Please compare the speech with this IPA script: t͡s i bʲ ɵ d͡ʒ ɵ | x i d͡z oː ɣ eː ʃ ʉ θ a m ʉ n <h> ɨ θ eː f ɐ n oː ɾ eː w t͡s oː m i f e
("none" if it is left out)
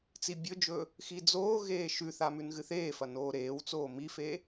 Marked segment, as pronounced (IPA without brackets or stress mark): ɣ